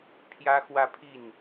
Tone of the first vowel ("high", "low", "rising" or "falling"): high